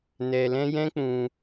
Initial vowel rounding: unrounded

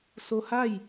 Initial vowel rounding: rounded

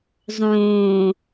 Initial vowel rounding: rounded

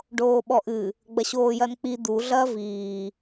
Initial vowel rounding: rounded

